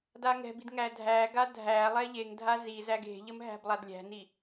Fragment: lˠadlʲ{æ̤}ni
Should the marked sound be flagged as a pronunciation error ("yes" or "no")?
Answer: no